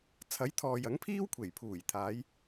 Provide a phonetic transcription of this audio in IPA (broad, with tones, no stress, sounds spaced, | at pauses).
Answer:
t͡sʰ ɐ˨˥ j t̪ʰ ɔː˨ j ɐ˨˥ ŋ pʰ iː˥ w kʷʰ e˨˩ j pʰ uː˨˩ j t̪ʰ aː˨˧ j